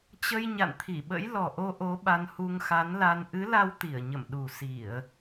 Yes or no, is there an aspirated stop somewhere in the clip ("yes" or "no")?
yes